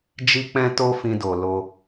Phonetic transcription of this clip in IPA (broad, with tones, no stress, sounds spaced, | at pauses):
d͡ʒ i˦ k͡p ɛ̃˦ t o˦ f ĩ˧ d o˨ l o˧